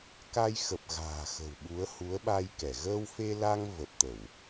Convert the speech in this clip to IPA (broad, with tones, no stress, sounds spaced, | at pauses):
k a˧ j x ə˨˩ p̚ ɣ a̤ː˨˩ x ə̤˨˩ w ɓ u˨˦ ə̯ h u˨˦ ə̯ ɓ a˧ j k ɛ˧˩ ɣ əː˧ w f e˧ l a˧ ŋ v ə˨˩ p̚ t̪ ə˧˩˨ w